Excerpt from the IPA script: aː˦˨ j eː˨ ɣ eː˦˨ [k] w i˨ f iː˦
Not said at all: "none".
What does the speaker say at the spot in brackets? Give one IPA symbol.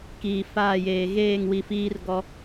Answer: ŋ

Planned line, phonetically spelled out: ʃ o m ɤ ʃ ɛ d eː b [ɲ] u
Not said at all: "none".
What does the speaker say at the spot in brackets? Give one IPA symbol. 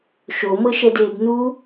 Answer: n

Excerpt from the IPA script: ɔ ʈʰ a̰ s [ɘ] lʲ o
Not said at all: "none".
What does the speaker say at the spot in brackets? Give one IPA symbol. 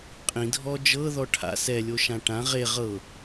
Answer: ɛ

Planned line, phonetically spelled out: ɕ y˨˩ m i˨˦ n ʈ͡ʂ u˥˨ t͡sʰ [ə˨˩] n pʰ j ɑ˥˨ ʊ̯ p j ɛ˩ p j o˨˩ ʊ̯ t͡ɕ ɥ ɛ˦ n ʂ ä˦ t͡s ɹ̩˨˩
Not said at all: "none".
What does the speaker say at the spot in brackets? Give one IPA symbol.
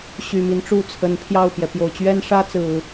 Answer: ə˨˦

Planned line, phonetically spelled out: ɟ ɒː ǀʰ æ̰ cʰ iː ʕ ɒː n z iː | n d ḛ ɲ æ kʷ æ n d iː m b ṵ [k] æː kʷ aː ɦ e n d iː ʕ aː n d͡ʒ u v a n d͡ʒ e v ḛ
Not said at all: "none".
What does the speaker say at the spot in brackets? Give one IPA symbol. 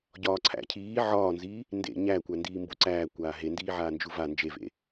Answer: ǀ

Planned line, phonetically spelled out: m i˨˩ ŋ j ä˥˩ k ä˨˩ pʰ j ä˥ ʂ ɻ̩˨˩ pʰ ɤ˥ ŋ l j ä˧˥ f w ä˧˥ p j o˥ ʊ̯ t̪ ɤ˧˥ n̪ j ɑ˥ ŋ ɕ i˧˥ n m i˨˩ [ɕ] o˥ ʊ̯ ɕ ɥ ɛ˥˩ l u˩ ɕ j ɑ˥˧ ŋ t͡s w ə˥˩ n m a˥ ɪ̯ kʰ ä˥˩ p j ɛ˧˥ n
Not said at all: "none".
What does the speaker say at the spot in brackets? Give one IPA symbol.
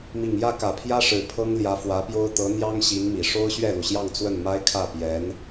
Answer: ʂ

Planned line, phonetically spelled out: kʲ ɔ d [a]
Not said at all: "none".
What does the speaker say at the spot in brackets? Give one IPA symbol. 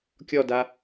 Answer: a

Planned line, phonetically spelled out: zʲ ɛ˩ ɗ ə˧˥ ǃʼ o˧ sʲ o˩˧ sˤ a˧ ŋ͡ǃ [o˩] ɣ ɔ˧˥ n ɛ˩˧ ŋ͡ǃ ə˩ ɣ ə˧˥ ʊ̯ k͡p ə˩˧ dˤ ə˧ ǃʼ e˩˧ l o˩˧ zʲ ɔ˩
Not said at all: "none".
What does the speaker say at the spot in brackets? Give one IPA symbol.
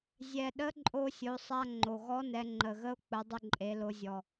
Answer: o˩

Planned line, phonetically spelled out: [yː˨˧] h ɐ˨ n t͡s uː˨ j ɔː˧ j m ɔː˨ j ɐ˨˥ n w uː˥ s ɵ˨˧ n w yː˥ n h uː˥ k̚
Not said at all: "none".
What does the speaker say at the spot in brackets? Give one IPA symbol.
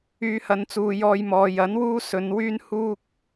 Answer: yː˨˧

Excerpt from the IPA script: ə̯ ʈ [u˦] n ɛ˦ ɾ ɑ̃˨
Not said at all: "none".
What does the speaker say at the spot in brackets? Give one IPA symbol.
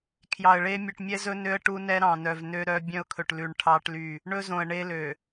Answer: u˦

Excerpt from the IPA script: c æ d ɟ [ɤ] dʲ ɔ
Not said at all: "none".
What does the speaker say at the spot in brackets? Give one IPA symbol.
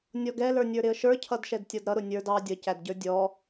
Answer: ə˞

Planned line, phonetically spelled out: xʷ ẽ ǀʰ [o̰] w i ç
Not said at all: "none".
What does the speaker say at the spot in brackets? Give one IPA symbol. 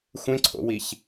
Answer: o̰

